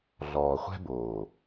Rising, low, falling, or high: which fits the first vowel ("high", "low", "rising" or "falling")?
low